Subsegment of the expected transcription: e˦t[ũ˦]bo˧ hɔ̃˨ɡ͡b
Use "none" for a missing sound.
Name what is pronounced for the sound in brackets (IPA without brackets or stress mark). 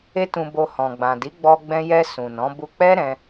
ũ˧